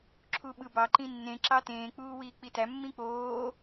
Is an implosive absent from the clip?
no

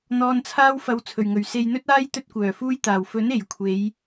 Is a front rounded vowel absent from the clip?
no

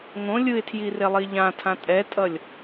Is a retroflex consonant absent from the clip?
yes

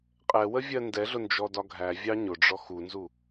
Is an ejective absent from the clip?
no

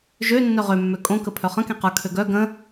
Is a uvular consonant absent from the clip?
no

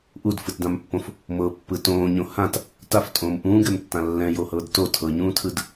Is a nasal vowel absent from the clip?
no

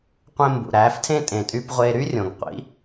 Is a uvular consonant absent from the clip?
no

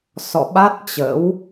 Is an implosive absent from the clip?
no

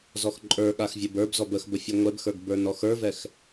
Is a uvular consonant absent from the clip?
yes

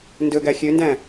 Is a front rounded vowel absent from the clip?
no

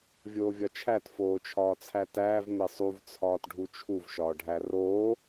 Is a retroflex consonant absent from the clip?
no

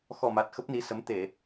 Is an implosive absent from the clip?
yes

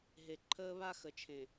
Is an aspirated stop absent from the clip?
no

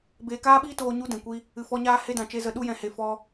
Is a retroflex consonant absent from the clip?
yes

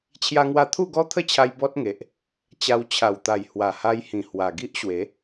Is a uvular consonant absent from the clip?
yes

